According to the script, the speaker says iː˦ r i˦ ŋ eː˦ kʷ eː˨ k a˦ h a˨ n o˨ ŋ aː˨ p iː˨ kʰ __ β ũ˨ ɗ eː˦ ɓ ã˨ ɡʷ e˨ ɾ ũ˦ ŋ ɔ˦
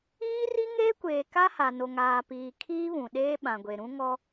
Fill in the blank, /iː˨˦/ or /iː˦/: iː˦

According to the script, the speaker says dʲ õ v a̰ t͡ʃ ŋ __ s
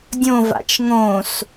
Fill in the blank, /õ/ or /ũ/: õ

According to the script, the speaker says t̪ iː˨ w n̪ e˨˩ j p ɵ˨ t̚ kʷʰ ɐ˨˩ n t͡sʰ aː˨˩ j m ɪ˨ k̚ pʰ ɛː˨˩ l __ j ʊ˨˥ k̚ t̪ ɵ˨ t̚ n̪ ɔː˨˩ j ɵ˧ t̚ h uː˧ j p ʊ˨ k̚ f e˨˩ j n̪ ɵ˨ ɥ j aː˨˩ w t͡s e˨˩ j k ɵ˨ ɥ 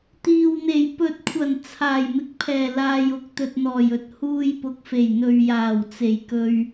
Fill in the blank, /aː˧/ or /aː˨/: aː˨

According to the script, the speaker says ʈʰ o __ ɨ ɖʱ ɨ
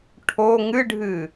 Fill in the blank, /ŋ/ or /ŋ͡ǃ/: ŋ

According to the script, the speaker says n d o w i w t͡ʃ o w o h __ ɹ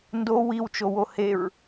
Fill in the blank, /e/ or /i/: e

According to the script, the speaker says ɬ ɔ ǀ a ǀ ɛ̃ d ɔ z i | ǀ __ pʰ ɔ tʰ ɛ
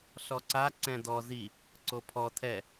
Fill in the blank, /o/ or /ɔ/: o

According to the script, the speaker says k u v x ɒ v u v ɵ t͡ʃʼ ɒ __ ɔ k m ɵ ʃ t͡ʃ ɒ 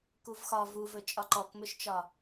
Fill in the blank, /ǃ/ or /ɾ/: ǃ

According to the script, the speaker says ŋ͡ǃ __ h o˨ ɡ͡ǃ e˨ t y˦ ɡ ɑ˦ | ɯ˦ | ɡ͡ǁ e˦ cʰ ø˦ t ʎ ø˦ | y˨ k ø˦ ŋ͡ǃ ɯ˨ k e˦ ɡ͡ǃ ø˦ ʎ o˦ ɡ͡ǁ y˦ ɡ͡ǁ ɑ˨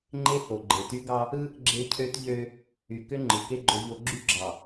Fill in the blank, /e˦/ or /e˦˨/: e˦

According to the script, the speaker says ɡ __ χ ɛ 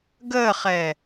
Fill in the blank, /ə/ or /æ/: ə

